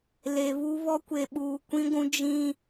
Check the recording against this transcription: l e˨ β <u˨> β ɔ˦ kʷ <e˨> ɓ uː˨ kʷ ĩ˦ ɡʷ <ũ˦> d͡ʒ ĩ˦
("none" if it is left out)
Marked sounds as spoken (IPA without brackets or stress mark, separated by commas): u˦, e˨, ũ˦